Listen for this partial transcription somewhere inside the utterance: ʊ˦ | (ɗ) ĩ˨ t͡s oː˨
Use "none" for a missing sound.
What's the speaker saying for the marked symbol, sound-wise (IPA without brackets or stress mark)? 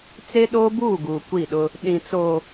ɗ